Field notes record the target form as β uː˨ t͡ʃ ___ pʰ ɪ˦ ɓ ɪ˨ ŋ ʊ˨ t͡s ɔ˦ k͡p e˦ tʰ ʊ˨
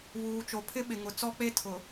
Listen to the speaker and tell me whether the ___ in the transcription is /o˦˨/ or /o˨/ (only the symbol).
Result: o˨